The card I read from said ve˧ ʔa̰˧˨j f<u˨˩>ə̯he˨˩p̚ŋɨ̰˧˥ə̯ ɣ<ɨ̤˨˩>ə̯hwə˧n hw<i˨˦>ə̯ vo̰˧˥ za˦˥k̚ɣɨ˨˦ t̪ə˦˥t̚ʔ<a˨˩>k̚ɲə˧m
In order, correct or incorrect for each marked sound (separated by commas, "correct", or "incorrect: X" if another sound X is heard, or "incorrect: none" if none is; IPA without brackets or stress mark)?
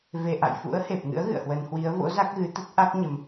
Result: incorrect: ṵ˧˥, incorrect: ɨ̰˧˨, correct, incorrect: a˦˥